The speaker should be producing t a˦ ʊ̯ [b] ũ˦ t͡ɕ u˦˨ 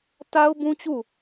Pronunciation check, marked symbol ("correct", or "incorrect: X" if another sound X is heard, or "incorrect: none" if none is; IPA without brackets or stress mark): correct